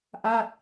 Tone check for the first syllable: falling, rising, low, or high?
falling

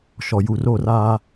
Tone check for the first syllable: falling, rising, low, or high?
low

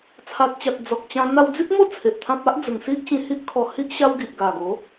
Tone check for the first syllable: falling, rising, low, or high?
low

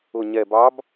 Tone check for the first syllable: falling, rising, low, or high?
low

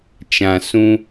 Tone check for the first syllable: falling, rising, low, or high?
low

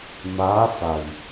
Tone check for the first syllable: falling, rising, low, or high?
rising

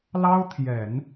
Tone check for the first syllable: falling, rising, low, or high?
high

